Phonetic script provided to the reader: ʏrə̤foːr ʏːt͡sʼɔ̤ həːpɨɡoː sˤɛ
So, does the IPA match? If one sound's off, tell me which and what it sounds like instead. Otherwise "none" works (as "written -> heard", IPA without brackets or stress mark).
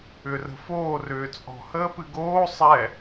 none